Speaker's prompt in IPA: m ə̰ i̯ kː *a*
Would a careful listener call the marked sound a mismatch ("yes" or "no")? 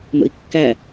yes